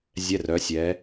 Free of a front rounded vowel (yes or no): no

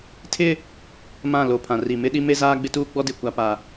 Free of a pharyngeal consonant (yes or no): yes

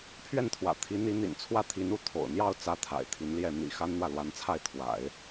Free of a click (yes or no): yes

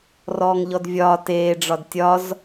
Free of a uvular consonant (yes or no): yes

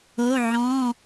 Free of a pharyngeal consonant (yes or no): no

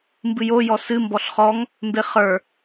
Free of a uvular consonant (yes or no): no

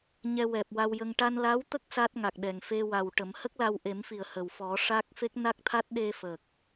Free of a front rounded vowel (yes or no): yes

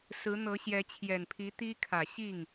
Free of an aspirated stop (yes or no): no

